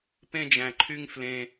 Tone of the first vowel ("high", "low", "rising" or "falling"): high